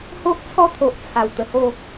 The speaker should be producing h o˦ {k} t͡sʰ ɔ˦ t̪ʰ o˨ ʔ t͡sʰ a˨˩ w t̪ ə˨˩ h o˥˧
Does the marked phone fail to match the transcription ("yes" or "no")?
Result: yes